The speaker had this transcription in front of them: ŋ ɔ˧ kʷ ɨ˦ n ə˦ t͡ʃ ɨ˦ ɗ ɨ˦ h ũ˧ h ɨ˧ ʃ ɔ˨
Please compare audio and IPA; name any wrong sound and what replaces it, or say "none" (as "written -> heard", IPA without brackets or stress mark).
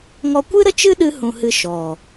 n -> ɾ